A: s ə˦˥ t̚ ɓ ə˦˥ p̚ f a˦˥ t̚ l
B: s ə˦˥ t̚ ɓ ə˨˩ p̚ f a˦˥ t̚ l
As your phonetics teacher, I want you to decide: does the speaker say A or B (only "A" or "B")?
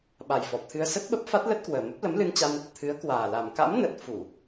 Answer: A